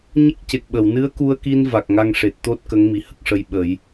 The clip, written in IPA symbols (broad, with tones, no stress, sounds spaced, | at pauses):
ɲ ə˦˥ k̚ c e˨˩ k̚ ɓ ə˨˩˨ w n ɨ˧˥ ə̯ k u˧ ə̯ k i˧ n v a˨˩ k̚ ŋ a˧ ŋ ʂ e˨˩ t̚ t̪ o˦˥ t̚ k ə˧˥ ŋ m i˨˩ h ə˦˥ k̚ ʂ ə˧ j ɓ ə˨˩˦ j